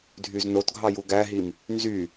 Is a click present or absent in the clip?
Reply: absent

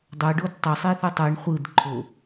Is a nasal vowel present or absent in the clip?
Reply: absent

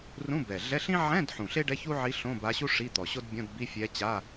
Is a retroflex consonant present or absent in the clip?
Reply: present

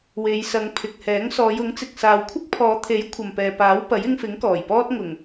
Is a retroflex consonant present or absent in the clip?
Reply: absent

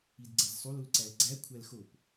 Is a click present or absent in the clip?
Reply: present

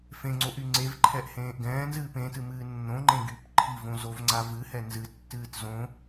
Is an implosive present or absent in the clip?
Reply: absent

